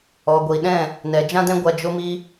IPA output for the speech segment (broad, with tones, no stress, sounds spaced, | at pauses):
ɔ˨ ɡʷ i˨ ɗ ɛ̃˦˨ | n ɛ˨ d͡ʒ ã˦ d ɛ̃˦ ɡʷ a˧ d͡ʒ o˦ m i˦